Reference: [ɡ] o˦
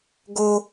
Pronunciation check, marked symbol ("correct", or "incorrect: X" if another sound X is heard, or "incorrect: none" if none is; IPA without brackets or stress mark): correct